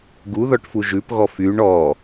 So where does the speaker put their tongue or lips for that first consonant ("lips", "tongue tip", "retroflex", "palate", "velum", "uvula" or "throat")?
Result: velum